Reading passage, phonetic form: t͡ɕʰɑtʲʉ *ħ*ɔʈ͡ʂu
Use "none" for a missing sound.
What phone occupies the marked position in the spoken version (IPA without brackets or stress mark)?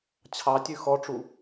x